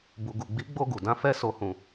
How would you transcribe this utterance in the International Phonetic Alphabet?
bu˨ɡu˨ɡ͡bi˨˦ɡ͡bo˧ ɡu˨dã˧fɛ˦ so˧hũ˧

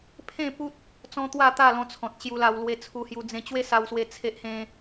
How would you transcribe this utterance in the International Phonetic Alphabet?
pʰẽ˥˧pu˦t̚ | t͡sɔ̃˦ t̪wa˥˧t̪a˥˧lɔ̃˧t͡sʰɔ̃˨t̚ ɕju˧la˧w lwe˧t͡sʰu˧hju˧ d͡zẽ˧t͡ɕwe˦sa˧wswe˧ t͡sʰe˦ʔhẽ˦

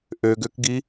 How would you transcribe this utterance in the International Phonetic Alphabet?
ʔøɡøkɡi

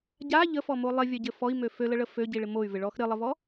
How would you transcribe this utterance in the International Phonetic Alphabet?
ɟa ʎəfɔmo lˠɪvʲœɟɘ fɔi̯mø føləɭə føɟiɭɪ moy̯vɪɭɔx ɾɘlˠəvɔ

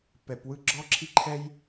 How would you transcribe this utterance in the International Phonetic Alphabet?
pɛ˨pwɯ˧ ɡ͡ǁɔ˦ǁʰi˦ǃʰɛ˦j

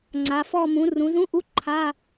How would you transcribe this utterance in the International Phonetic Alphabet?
ŋ͡ǀa˩˧fɔ˥˧ mũ˩˧rũ˩˧zũ˧˥˧ʔu˧˥˧ ǃʰa˧˥˧

